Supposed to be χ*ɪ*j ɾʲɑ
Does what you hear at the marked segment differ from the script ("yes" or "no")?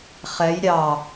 yes